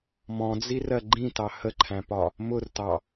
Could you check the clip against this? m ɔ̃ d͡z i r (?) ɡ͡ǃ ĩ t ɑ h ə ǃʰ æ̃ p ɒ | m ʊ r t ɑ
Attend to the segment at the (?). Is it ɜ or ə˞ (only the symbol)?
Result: ɜ